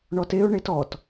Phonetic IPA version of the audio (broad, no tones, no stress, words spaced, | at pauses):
ɳɔteʊ̯ ɳetɔt